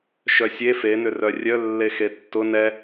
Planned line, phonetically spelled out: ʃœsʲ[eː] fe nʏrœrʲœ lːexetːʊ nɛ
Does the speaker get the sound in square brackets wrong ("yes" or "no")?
yes